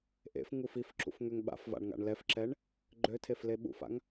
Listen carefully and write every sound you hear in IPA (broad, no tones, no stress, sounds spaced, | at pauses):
ʔ ḛ f ŋ u f i f ǁ ṵ f ŋ ø ŋ ɓ a̰ f v a̰ ɳ ŋ a̰ ɳ l ɛ f ǁ ɛ ɳ | ɡ͡ǃ ø tʰ e f l e ɓ ṵ f a̰ ŋ